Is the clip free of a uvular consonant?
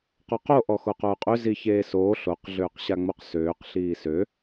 no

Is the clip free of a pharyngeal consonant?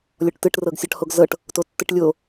yes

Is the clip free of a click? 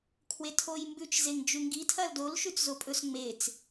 yes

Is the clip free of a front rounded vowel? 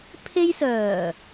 no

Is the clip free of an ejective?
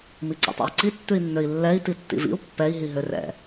yes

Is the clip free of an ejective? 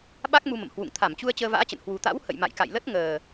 yes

